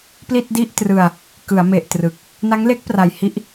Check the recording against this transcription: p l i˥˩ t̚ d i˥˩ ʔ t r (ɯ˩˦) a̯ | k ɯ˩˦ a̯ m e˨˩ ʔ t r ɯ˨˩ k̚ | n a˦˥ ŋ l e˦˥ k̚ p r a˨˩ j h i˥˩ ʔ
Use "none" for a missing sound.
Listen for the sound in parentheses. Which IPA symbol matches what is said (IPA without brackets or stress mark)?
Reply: ɯ˧